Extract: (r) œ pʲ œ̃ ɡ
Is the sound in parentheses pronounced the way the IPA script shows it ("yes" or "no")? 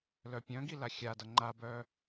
no